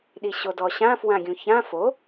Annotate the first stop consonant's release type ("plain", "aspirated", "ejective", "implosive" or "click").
implosive